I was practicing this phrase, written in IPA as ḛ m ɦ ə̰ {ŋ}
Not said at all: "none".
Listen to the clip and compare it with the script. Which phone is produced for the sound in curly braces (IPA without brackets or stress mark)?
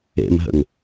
ŋ